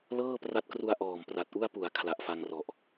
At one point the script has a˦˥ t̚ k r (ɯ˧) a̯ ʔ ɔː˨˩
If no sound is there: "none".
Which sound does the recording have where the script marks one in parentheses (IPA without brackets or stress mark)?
u˧